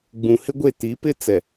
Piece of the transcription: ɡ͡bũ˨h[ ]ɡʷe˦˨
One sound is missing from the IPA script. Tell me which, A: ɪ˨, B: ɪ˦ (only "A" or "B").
B